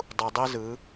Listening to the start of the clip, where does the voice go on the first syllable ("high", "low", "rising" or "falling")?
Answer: low